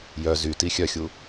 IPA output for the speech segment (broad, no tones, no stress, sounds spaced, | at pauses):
j œ z y t i xʲ œ xʲ u